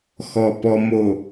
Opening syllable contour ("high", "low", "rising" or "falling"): low